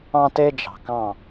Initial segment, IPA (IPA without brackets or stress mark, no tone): ɑ̃